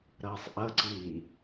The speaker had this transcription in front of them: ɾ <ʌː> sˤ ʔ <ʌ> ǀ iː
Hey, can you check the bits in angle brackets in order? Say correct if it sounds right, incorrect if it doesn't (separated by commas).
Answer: correct, correct